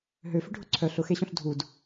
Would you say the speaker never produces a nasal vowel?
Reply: no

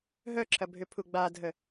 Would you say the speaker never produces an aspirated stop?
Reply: no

